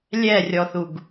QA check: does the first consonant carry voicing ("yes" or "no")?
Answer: yes